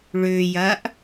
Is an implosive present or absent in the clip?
absent